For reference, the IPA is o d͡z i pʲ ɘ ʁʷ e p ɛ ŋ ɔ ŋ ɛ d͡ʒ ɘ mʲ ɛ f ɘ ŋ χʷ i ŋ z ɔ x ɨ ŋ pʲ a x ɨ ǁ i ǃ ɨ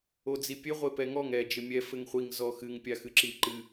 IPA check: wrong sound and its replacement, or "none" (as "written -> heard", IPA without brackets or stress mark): none